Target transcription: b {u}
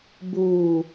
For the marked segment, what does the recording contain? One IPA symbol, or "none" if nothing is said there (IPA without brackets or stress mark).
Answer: uː